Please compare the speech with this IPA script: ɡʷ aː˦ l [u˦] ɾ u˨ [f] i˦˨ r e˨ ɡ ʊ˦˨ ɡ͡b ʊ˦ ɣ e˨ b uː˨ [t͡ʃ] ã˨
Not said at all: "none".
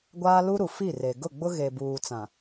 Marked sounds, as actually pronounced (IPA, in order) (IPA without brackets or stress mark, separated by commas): u˦, f, t͡s